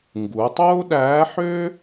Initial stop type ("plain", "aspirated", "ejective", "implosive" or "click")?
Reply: plain